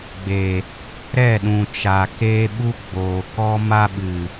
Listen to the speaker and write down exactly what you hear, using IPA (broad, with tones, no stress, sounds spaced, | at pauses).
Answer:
ɡ͡b e˨ | ɾ ɛ˦˨ ɗ ũ˨ t͡ʃ a˨ k eː˧ ɓ u˧ ɡ͡b oː˨ k ɔ˧ m a˧ ɓ ɨ˨